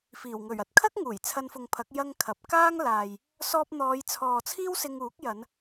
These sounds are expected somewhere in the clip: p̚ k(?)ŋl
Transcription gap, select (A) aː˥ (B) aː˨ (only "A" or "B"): A